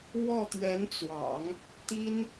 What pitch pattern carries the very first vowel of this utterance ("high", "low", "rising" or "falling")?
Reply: falling